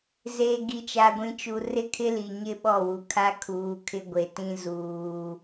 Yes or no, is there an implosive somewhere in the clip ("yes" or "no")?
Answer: yes